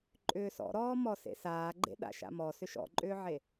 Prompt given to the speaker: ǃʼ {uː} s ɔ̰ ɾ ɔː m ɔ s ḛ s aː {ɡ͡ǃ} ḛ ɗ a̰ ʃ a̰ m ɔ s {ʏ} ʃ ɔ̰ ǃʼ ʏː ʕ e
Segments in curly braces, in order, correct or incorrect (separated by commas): incorrect, correct, correct